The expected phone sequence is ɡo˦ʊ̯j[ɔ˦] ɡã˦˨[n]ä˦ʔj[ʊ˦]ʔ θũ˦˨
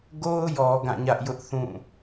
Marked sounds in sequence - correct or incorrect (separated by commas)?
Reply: incorrect, incorrect, correct